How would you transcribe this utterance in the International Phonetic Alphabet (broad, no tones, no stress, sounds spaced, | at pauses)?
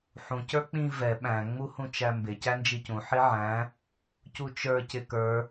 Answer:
ħ ũ c ə˞ k͡p ĩ v ɛ ɓ æ̃ ŋ͡m u h ũ t͡ʃ æ m b ɪ c æ n d͡ʒ i c ũ ħ i ʕ æ̃ | c u t͡ʃ ə˞ c ɪ k ə˞